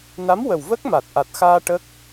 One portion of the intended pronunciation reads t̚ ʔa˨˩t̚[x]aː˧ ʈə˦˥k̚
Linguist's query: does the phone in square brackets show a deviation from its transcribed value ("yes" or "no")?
no